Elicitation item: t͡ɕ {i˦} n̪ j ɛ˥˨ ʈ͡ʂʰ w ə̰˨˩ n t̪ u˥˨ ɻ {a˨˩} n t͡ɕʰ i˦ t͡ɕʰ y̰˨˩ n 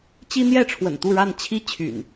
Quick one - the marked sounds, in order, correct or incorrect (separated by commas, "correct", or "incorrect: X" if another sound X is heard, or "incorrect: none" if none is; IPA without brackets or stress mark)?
correct, incorrect: a˥˨